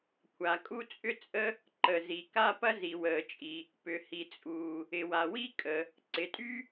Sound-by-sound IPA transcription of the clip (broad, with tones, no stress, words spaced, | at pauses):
kʷʰa˩kʼu˥t͡sʼʏ˥t͡sʼə˥ | ǃə˩zi˩ka˥ pɐ˥zi˩wəː˩t͡ʃʼi˩ | pʏ˩hi˩t͡sʼuː˩ | ɪ˩wa˩wi˥ kʼə˩ | ǀɪ˩tʼy˥